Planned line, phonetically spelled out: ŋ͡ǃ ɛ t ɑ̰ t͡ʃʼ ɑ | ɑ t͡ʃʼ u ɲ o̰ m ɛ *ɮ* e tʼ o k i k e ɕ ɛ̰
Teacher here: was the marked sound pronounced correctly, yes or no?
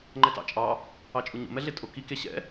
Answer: yes